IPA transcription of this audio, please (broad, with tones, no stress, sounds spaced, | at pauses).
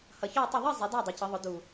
h ʌ˨˩ ç ɒ˥˨ y̯ tˤ ə˥˨ ðˤ i˥˨ zˤ i˩˥ d æ˥˨ dˤ ʌ˩˥ c ʌ˩˥ ðˤ ʊ˩˥ d u˨˩